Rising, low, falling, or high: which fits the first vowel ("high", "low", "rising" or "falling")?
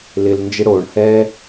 low